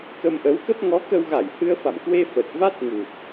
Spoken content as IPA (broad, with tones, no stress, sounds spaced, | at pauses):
k ə˧ m ʔ ə˨˦ w k ə˦˥ p̚ ŋ ɔ˨˦ k ə˧ w ɣ a˧˩ j h ɨ˧ ə̯ f a̰˧˨ m k w e˧ f ə˨˩ t̚ v a˦˥ t̚ ŋ u˨˩ t̚